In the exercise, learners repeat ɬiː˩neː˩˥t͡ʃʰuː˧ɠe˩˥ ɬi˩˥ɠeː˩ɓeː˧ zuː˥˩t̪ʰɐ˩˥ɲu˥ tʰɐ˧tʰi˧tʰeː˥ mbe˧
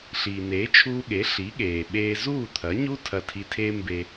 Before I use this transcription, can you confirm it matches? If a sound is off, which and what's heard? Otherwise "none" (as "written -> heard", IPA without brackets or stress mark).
none